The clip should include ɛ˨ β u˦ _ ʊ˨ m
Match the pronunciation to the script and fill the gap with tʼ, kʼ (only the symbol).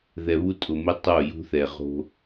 tʼ